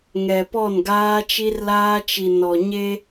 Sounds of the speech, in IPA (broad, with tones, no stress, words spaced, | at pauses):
ŋɛ˨ pɔ˦˨nɡaː˦t͡ʃi˦rlaː˦ t͡ʃi˨nɔ˨ɲe˦